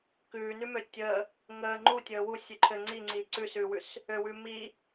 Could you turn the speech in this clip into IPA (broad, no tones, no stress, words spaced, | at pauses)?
kʉːnʉmø tʲə | ŋəː ŋ͡ǃutʲəː wusʲʉ ǃʰɘ ŋ͡ǀiŋ͡ǀiː ǀʉsʉːwʉs | øwʉː mi